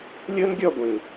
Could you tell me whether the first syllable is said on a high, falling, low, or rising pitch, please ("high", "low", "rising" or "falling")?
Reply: high